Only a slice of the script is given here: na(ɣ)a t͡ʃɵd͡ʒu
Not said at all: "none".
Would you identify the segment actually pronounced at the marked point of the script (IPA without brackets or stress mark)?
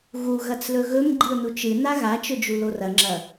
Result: ɣ